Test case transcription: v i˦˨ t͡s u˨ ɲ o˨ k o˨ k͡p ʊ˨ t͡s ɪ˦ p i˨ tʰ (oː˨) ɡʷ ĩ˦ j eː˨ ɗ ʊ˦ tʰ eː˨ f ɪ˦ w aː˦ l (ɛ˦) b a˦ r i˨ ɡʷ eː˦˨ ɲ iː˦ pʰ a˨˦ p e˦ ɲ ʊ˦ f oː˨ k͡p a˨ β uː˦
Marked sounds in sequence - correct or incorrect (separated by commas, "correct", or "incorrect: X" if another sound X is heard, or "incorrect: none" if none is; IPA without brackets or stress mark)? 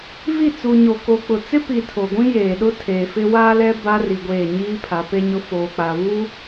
incorrect: o˨, correct